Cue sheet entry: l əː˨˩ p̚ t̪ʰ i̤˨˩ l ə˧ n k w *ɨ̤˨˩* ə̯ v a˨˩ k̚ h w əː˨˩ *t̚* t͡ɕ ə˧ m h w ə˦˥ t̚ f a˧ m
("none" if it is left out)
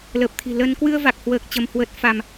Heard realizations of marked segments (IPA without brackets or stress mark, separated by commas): ɨ˧, k̚